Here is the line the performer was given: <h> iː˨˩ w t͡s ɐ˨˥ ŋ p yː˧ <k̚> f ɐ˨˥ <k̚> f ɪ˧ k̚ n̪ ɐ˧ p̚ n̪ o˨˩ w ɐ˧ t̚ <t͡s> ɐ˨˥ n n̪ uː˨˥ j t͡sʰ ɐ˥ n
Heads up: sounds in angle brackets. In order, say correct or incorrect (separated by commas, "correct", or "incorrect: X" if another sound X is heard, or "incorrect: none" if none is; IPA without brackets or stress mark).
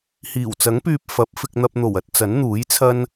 correct, incorrect: p̚, incorrect: p̚, correct